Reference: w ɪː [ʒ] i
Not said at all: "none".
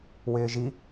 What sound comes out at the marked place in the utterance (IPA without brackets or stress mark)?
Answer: ʒ